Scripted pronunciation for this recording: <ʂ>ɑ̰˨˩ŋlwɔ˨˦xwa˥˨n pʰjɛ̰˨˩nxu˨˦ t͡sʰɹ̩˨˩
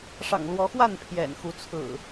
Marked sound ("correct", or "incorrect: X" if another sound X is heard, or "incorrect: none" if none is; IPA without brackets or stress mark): correct